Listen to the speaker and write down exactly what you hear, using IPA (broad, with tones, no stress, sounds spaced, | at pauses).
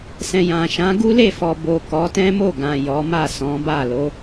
s ɛ̃˨ j ã˨ ʃ ã˨˦ ɡ u˦ l e˦˨ f ɔ˨ b o˨ k ɔ˨˦ t ɛ̃˦ m o˦˨ ɡ ã˨ j ɔ˨˦ m a˦˨ s ɔ̃˨˦ b a˦˨ l o˨˦